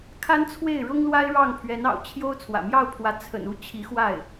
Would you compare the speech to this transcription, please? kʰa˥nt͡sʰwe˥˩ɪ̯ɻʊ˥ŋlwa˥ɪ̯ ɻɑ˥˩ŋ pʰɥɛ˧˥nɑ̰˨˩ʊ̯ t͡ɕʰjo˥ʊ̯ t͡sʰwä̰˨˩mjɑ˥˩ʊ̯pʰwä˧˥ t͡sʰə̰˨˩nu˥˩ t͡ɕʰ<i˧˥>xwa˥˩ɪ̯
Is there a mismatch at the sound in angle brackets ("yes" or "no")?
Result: no